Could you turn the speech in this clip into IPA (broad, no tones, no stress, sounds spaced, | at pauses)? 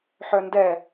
ħ œ n d ɛ